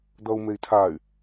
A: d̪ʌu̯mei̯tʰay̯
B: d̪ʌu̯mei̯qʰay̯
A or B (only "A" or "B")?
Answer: A